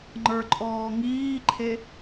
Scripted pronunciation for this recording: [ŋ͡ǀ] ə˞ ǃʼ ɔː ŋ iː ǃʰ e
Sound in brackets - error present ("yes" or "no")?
yes